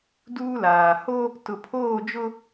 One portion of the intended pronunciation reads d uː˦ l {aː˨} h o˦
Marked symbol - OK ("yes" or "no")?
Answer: yes